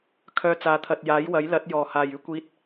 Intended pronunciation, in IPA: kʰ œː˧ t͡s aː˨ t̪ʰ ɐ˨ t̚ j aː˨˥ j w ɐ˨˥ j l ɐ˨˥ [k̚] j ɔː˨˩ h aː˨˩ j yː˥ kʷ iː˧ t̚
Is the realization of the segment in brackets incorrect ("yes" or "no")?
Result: yes